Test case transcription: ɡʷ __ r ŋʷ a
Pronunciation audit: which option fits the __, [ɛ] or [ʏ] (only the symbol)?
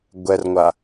ɛ